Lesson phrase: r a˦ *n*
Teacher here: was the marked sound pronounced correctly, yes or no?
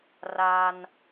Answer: yes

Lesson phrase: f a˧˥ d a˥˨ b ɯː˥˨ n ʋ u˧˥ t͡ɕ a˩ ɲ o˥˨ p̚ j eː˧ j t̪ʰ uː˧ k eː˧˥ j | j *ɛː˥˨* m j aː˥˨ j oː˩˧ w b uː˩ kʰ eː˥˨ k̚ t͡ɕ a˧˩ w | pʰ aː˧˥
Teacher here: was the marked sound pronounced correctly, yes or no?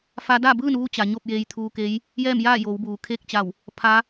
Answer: yes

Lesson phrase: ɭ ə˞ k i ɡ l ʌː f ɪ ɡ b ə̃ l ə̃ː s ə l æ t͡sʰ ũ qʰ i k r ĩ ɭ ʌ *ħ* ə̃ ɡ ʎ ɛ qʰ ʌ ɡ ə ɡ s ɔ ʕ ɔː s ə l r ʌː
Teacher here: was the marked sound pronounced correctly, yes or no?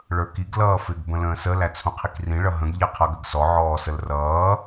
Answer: no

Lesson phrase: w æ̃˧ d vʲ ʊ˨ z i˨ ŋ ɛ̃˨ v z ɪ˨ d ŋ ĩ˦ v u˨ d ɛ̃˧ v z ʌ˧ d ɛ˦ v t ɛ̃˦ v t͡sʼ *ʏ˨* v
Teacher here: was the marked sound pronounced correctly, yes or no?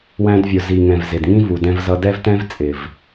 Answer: no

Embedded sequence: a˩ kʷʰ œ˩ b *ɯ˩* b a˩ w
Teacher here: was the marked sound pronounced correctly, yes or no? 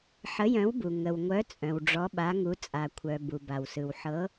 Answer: no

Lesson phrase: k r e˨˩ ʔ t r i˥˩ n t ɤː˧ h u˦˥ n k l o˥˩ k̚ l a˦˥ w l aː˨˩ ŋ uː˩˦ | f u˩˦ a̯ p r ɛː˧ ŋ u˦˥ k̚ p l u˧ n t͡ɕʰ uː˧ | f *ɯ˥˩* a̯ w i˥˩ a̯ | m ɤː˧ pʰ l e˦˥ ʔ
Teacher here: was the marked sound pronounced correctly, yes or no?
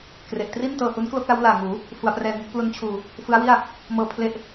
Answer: no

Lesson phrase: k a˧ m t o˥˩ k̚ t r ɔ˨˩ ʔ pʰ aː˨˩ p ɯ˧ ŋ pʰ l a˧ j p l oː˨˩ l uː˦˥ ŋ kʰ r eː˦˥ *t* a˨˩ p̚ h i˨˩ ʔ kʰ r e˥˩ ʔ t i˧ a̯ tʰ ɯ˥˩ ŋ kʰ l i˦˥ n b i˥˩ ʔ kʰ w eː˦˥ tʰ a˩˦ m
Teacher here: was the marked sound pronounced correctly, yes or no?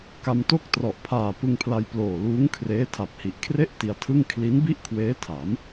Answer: no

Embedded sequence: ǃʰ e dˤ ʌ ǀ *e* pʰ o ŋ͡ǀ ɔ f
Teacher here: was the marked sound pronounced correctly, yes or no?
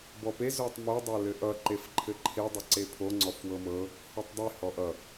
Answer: yes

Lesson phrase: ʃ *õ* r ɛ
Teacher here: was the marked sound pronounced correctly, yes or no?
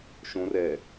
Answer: yes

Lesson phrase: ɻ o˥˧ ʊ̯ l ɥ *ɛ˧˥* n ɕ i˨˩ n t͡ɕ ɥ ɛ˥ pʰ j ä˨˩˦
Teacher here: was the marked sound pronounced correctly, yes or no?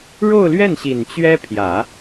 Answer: no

